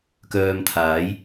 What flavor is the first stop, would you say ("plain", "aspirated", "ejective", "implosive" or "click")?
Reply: plain